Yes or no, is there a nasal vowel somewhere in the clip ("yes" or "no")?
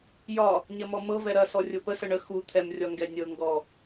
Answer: no